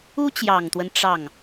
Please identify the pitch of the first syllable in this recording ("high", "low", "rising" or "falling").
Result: high